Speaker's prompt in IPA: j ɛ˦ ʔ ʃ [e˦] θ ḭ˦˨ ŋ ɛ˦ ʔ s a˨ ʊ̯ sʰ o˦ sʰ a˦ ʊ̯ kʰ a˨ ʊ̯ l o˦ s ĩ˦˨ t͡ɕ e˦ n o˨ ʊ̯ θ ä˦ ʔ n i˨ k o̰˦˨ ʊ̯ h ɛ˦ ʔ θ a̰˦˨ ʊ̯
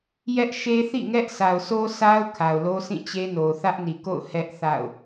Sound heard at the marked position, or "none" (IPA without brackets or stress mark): e˦